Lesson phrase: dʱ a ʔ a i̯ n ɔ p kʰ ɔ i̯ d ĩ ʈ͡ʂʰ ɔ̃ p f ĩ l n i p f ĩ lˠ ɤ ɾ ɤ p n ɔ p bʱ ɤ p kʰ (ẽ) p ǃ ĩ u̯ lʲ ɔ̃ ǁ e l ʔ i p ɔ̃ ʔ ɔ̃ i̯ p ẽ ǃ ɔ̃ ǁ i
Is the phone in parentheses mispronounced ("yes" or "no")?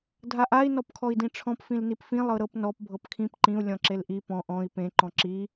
yes